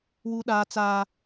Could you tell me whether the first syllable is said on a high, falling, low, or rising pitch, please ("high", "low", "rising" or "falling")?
high